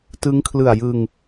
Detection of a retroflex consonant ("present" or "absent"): absent